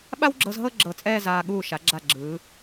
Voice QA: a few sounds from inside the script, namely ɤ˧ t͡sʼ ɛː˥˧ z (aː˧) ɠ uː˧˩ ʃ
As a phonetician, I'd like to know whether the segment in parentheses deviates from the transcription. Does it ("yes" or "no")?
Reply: no